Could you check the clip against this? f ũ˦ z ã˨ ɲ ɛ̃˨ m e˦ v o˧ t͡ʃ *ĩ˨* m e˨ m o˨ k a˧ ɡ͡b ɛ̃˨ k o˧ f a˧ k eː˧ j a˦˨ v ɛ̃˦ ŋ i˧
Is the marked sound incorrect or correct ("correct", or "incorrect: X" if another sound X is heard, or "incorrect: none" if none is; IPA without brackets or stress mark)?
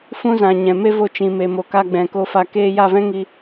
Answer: correct